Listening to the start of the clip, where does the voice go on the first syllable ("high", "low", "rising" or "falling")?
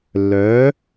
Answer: rising